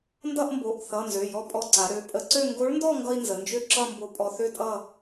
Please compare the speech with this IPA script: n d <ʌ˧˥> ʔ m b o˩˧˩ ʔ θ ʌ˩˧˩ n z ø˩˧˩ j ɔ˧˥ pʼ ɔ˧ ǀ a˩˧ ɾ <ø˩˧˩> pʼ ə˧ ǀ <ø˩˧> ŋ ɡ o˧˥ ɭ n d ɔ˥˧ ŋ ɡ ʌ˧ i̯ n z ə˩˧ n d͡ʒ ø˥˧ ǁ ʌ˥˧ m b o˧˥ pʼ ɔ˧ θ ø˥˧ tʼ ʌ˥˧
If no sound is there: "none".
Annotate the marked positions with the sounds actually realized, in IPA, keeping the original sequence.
ʌ˥˧, ø˩˧˩, ø˥˧

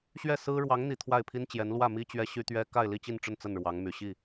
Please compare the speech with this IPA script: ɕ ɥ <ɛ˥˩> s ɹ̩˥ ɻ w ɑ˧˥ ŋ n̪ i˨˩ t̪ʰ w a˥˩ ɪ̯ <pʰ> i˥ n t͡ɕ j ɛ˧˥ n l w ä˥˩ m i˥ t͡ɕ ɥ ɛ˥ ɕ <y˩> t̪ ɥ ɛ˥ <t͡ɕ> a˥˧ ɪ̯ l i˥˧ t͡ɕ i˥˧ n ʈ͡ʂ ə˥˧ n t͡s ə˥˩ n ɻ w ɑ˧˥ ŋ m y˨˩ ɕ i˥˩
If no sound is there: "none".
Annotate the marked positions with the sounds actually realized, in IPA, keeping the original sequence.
ɛ˥˩, pʰ, y˥, k

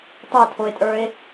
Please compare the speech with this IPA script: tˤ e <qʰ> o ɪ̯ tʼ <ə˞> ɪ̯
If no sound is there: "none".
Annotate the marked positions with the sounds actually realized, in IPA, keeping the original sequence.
tʰ, ə˞

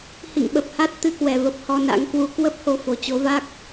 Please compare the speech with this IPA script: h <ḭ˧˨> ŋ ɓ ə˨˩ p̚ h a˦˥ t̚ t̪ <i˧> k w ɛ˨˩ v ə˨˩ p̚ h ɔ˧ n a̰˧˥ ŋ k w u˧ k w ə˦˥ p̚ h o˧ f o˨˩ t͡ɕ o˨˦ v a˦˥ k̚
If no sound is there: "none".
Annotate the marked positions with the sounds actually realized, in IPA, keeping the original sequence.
ḭ˧˨, ɨ˧

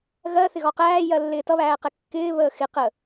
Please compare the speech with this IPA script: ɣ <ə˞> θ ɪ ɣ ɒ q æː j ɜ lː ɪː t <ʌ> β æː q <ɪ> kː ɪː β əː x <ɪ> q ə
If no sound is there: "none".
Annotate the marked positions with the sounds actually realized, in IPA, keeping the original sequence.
ɜ, ʌ, ɛ, ɪ

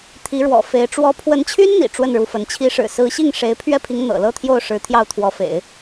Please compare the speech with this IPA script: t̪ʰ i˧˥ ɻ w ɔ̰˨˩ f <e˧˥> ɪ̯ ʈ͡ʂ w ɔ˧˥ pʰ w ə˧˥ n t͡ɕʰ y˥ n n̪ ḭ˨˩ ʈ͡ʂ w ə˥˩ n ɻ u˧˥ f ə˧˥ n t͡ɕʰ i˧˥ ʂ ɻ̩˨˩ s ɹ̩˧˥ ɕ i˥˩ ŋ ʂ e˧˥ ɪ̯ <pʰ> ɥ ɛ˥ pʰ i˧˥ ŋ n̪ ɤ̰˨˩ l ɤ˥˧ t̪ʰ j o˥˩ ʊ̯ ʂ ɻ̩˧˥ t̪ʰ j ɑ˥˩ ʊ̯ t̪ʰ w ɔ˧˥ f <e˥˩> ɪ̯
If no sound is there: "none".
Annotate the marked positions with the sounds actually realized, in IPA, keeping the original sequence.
e˧˥, pʰ, ḛ˨˩˦

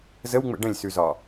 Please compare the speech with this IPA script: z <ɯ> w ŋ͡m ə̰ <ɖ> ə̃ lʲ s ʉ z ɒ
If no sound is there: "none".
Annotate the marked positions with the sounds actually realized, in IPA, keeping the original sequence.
ə, ɖ

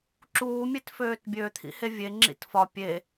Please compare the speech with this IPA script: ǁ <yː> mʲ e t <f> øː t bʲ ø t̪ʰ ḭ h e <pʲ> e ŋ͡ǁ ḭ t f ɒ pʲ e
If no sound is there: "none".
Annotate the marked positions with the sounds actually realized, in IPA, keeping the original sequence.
uː, f, vʲ

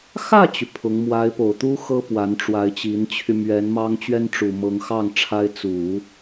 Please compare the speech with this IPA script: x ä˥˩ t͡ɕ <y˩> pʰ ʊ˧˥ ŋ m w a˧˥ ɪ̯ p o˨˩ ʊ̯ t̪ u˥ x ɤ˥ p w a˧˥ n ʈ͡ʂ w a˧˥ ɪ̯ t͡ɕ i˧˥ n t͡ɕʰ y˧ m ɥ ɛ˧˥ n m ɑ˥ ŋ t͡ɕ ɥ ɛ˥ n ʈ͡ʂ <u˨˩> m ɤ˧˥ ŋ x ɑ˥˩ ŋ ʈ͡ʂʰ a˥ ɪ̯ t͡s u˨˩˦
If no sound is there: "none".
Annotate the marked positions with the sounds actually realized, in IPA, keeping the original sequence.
y˩, u˨˩

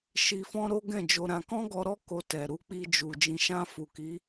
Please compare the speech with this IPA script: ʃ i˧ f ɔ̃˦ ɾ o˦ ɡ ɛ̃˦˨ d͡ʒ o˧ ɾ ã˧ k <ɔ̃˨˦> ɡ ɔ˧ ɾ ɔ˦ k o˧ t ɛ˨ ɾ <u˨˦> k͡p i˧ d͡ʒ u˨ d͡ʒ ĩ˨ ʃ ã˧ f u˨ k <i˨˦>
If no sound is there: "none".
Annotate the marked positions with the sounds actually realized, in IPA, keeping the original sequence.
ɔ̃˦, u˨˦, i˨˦

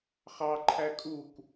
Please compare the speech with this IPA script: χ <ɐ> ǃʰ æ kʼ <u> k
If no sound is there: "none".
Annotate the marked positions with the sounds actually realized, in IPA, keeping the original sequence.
ɑ, u

